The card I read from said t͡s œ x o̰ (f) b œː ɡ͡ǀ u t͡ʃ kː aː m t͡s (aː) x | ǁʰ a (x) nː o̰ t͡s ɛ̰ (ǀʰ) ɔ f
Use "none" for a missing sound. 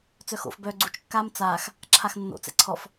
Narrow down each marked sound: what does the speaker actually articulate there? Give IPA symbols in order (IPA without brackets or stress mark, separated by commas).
f, aː, x, ǀʰ